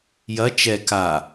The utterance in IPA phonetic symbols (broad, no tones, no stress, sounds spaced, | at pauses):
j ɐ t͡ʃ ɛ k a